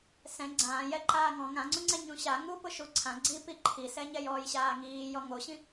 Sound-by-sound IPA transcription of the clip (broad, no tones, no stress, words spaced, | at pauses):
sɛ̃ ɡ͡ǀãːjɛǃaː ŋɔ̃ ŋãŋ͡ǀũŋ͡ǀɛ ɲũɕa ŋupʊ ʃuǀʰã ɡ͡ǀipi ǃʰisɛɲɛ jɔːjɕaːŋiːjɔ ŋoɕĩ